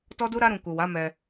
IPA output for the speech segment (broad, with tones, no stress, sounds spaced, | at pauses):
t ɔ˦ d u˦ ɾ a˦ ɾ ũ˧ k u˨ w a˨˦ m ɛ˧